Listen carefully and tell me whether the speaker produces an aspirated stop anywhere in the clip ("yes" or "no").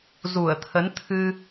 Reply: yes